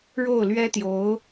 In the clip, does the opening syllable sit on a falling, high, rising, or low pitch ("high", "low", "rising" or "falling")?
falling